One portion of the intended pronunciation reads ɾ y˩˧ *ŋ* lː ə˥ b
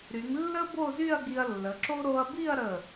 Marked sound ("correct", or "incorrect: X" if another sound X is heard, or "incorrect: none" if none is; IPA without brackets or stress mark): correct